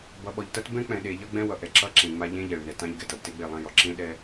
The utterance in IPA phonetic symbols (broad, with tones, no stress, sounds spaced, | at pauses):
b ʌ˨ ɓ ɔ˨ ʎ t ʌ˦ t b ɛ̃˦ k͡p ɛ̃˨ ɗ e˨ ʎ ʌ˦ ɡ͡b ɛ̃˦ w ʌ˨ ʔ ɛ˨ ǁ ʌ˦ ǁ ẽ˨ ŋ͡m a˨ ʎ ẽ˦ ʎ ɛ˨ ɭ n ɛ˨ t ã˦ ʎ ɡ ɛ˨ t ʌ˨ b t e˦ ɡ͡b e˦˨ lˠ ã˦ j ɔ˨ ǁ ẽ˦ ɗ ɛ˦